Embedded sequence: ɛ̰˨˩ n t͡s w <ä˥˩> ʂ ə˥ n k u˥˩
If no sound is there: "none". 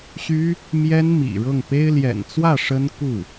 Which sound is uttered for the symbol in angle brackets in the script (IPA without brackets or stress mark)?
ä˥˩